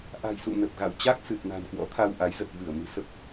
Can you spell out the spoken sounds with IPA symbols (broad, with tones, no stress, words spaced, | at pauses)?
ʔa̤˨˩jsṵ˧˨nə˨˩p̚ɣa̰˧˨w t͡ɕa˦˥k̚sɨ˨˩t̚na̤˨˩n kwɔ̰˧˥t̪ʰa˧wʔa˨˦j zə˨˩t̚vɨ˧˩ə̯mɨ̤˨˩ sə˦˥p̚